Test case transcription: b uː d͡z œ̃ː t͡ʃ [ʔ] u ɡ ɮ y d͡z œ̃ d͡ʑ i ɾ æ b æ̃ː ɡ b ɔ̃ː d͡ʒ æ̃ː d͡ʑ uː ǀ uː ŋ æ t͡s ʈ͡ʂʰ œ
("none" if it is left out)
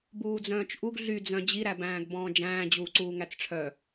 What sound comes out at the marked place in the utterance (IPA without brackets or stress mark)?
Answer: ʔ